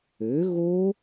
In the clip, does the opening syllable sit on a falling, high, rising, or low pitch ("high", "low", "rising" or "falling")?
rising